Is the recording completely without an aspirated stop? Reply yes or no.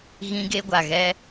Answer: yes